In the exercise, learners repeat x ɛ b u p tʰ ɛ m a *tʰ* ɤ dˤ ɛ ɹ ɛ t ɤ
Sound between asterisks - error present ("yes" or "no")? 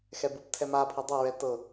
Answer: yes